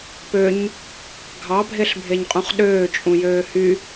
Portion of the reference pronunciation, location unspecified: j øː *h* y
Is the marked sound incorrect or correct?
correct